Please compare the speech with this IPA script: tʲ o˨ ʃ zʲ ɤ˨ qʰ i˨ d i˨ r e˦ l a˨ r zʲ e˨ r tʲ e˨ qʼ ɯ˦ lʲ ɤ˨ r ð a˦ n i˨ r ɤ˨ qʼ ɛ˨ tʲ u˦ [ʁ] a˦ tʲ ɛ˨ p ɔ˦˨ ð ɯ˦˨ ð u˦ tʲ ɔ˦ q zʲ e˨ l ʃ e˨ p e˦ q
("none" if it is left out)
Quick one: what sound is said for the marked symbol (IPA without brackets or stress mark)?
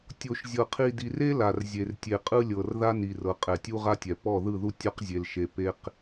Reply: ʁ